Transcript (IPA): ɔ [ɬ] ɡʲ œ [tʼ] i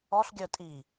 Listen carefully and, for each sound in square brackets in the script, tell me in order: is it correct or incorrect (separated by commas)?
correct, correct